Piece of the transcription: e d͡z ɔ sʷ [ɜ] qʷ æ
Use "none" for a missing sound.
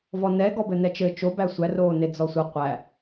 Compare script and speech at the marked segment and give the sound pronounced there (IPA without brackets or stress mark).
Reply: ɜ